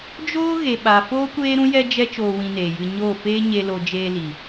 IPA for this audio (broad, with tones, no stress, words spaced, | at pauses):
d͡ʒoː˦ɣe˨ ɓa˨foː˦kʷeː˦ɾũ˦ jɛ˦d͡ʒɛ˦ t͡ʃoː˧wĩ˧neː˨jɨ˧ ɲoː˦˨feː˦ ɲe˧lo˧ d͡ʒeː˧li˨